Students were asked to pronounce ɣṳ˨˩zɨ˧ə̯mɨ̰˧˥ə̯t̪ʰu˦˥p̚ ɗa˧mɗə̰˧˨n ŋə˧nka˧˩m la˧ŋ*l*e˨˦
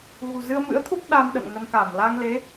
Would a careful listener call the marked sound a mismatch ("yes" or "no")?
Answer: no